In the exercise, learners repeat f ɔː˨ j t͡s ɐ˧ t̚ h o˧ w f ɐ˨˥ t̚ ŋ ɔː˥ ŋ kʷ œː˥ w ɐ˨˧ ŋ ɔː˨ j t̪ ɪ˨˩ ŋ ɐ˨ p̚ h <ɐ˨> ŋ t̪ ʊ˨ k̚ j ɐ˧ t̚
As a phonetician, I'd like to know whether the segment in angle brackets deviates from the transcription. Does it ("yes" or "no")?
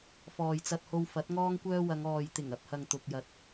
no